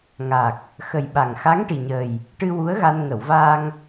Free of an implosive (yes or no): no